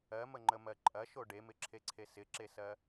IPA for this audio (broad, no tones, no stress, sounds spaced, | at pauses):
ɜ m ə ŋ͡ǃ ə m ɜ ǃʼ ɐ ʃ o ɖ e m ɪ ǁʰ e ǀʰ e s ɪ ǁ e s ɜ